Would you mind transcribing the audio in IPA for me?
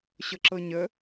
ɕ ɤ ǁ ɤ ɲ ə

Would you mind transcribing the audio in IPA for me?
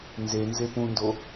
n z e n z e p ũ n d o

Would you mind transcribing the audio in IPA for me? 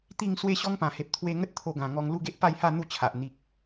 t̪ i˥˧ ŋ s w e˦ ɕ ɔ˦ ŋ p ã˨˩ h e˨ p̚ t̪ʰ w e˧ ŋ ə˦ t̚ t̪ʰ o˧ ɡ ã˨˩ ŋ ɔ˧ ŋ l u˥˧ ɡ e˦ ʔ p a˥˧ j h a˥˧ n̪ u˥˧ t͡ɕʰ a˨ ʔ n̪ i˨ k̚

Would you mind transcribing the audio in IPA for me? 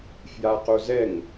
f j a q o z ɛ ŋ

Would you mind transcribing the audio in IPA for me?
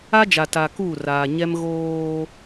a˦ d͡ʒ a˨ t a˨ k uː˦˨ r aː˨ ɲ ɛ˦ m ɣ oː˦

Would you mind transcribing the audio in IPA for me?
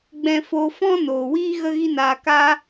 ɡ͡b ɛ̃˧ f oː˧ f ɔ̃˦ n oː˨ w iː˦ ɣ ə˦ ɣ i˦ n aː˧ k a˦

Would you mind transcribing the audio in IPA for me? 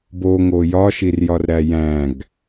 b o ŋ o j ɒ ʃ i r j ɒ r ɾ æ j æ̃ ɡ

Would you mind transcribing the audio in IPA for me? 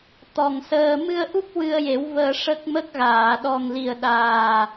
t̪ ɔ˨˩ ŋ s əː˧ m ɨ˧ ə̯ ʔ u˦˥ k̚ w ɨ˧ ə̯ j e˨˩˦ w v əː˧ ʂ ə˦˥ k̚ m ə˦˥ k̚ ɣ aː˨˩˨ ɗ ɔ˨˩ ŋ l i˨˩ ə̯ ɗ aː˨˩

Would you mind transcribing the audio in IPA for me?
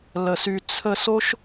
l ə˨ s y˧ t͡sʰ ə˧ s o˦ ʃ

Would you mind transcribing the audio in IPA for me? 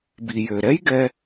b i˩ j ø˩ ɾ ɛ˥ j ɡ ɛ˦

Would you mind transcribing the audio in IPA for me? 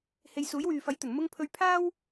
h e˨ j s uː˨˥ j w yː˨ f ɐ˨˥ j t̪ ɵ˨˩ n m ʊ˥ ŋ pʰ ɵ˧ ɥ pʰ aː˥ w

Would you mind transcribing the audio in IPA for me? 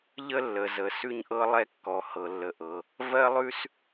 ʎ ə˥ lː ə˩ z ə˩ s ʉ˥ ɲ ʔ ɤ˥ lˠ ɛ˥ kː ɔ˩ h ɤ˩ lː ə˩ ʔ ɤ˩ | v ɜ˥ lˠ ʉ˥ s

